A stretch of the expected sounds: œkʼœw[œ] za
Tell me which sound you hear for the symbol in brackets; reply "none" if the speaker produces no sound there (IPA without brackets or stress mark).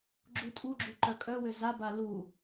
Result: ø